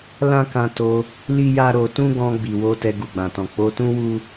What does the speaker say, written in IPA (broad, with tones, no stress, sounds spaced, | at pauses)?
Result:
l ã˦ k ã˧ t o˧ | l i˦ j a˦ ɾ o˧ t ũ˦ ɡ ɔ̃˧ ɡ͡b i˨ w o˧ t ɛ˧ ɡ u˨ ɡ͡b ã˨ t ɔ̃˨ k͡p o˧ t ũ˦ w u˦